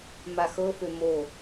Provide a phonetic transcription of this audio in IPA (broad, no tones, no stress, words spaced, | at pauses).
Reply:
maxɤfø mo